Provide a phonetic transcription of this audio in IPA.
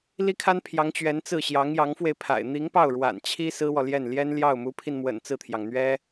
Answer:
l i˥ kʰ a˥ n pʰ j ɑ˧˥ ŋ t͡ɕ ɥ ɛ˧˥ n t͡s ɹ̩˥˩ ɕ j ɑ˧˥ ŋ j ɑ˧˥ ŋ f w e˧ ɪ̯ pʰ a̰˨˩ ɪ̯ n̪ i˧˥ ŋ p ɑ˥˩ ʊ̯ ɻ w a̰˨˩ n t͡ɕʰ i˥ s ɹ̩˥ w ɔ˨ l j ɛ˥˩ n l j ɛ˥ n l j ɑ˥˩ ʊ̯ m u˧˥ pʰ i˧ n m w ə̰˨˩ n t͡s ɹ̩˥˩ t̪ʰ j ɑ˩ ŋ n̪ ɥ ɛ˥

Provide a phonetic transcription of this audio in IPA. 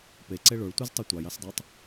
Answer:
p e ǀ e ɭ o ɭ tʷ i z tˤ ɯ tʷ ɑ j ɑ s dˤ ɑ tˤ

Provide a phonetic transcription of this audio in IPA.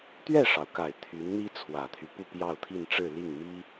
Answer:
t̪ ɥ ɛ˥˩ ʂ ɑ˩ ʊ̯ k a˨˩ ɪ̯ t̪ʰ y˧˥ n n̪ i˥ t͡sʰ w ä˨˩ t̪ʰ y˦ p u˥˧ p j ɑ˥˧ ʊ̯ t̪ʰ i˥˧ n ʈ͡ʂ ɻ̩˥˧ l i˥˩ ŋ m i˥

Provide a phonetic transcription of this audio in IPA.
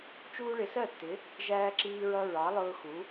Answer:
t͡ʃ uː˦ ɭ ɪ˨˥ s ɜ˥˩ tː ɪ˨˥ | ʒ æː˦ ǁ iː˦ ɹ ʌ˦ ɹ ɑ˨˥ lˠ ʊː˦ x u˨˥

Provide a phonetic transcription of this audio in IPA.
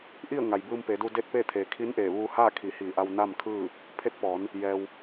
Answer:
ʔ i˥˨ ə̯ ŋ a˩ j b ɯː˧ m p e˩˧ d u˧ d e˥˨ t̚ p eː˥˨ t̪ʰ eː˩ kʰ i˧˥ n ʔ eː˧˩ ʋ uː˧ h aː˥˨ kʰ i˧˩ h iː˧˩ ʔ a˧ w n a˥˨ m kʰ ɯː˥˨ | pʰ e˧˥ t̚ p ɔː˩˧ n | j ɛː˩ w

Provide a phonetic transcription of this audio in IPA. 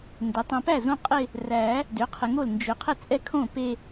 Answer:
n d ɛ˩˥ tˤ ɛ̃˨ p æ˥˩ z õ˥˧ qʼ ɪ˥˧ | r æ˨˩˦ | d ʏ˩˥ qʰ ɪ˨ ŋ o˥˩ l n d͡ʒ ʏ˨˩˦ qʰ ɪ˥˩ t͡sʼ ɛ˥˩ kʰ õ˥˩ p e˥˧

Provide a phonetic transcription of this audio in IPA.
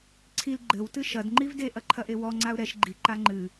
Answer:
ǀʰ i l ɡ͡ǃ ɘ w t ɨ ʃ ɐ d ŋ͡ǃ i v d e ʔ ɐ ǃʰ ɐ ʔ e w ɔ ŋ͡ǀ a ʊ̯ ɾ ɛ ʃ ɡ͡ǃ i ǃ a ŋ͡ǃ ɨ

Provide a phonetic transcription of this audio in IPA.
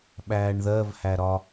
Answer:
ɓ æː ɳ ð ɜ v h æ ɾ ɒ

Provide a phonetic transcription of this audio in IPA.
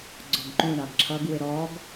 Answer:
ɡ͡ǀ ɔ ɡ ǃ ũ ɳ ɑ ɡ ǁʰ ʌ ɡ w ɪ ɾ ɔ ɡ

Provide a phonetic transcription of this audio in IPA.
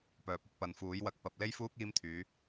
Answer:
p œː˨ p̚ ʊ˧ k̚ p ɐ˨ n f uː˨˥ j w ɐ˧ k̚ p ɐ˨ p̚ l e˥ j f uː˥ k̚ iː˥ m t̪ʰ yː˨˥

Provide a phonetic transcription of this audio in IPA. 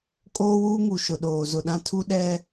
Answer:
kʼ oː˦ w uː˦ ŋ u˨ ʃ ʊ˨ ɗ oː˨ z ʊ˨ ɗ ã˦ tʰ u˦ ɗ ɛ˦

